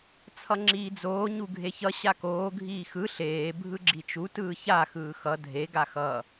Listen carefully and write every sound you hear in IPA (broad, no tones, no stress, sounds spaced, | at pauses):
t͡sʰ ʌ ŋ͡ǁ iː d͡z oː ɲ u ɡʱ e ç ʌ ɕ a k oː ɡʱ iː x ɯ ɬ eː bʱ ɯ ɡ͡ǁ i t͡ʃ u t ɯː ç a x ɯː x ʌ dʱ e ɡ a x ʌ